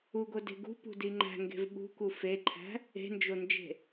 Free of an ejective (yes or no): yes